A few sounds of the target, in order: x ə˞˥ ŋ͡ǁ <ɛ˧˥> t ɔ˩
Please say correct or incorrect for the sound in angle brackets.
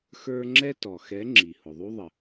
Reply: incorrect